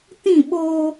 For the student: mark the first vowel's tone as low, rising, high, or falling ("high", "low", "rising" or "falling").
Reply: falling